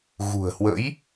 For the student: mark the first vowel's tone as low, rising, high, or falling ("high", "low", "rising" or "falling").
low